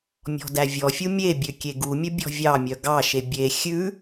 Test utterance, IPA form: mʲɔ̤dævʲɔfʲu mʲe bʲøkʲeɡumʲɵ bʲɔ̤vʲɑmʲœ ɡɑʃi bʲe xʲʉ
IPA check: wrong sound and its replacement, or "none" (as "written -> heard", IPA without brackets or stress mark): i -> e